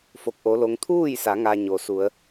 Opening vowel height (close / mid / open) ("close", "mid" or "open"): mid